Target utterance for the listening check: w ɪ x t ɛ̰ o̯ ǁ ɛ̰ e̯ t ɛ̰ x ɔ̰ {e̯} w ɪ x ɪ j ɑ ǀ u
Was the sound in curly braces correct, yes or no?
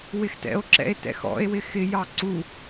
yes